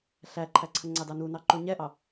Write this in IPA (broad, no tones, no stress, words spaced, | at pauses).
ɬæǃʰæǀʰə ŋ͡ǀɑdɑnunɑ ǃuɲɛʔɑ